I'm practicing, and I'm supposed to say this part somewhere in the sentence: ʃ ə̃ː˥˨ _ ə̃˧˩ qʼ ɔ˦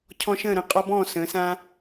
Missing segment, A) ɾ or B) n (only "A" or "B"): A